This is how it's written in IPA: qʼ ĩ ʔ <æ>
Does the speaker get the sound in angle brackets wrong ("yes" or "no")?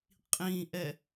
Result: yes